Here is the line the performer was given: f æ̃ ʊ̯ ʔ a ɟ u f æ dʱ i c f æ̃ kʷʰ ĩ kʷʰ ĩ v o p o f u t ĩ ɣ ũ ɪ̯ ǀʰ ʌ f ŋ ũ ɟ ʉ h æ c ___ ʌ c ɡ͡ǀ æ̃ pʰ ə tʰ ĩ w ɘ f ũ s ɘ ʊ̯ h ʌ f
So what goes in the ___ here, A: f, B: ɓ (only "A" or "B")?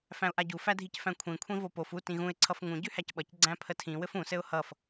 B